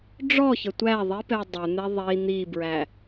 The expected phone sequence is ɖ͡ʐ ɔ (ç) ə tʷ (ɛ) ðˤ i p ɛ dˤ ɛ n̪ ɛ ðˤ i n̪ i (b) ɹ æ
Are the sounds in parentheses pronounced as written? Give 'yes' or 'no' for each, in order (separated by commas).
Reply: yes, no, yes